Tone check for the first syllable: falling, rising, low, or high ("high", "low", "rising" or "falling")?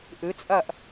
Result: rising